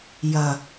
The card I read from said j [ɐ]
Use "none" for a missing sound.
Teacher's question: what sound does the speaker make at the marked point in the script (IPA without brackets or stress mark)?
ɐ